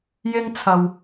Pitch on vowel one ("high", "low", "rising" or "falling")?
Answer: high